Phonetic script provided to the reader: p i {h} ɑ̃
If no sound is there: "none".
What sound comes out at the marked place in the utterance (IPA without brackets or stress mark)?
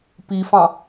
f